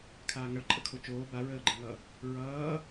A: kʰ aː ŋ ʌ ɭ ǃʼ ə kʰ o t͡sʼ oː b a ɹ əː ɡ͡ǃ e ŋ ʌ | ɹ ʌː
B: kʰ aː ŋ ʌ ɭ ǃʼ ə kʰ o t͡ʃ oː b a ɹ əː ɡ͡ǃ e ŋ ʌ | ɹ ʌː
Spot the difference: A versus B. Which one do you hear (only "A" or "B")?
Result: B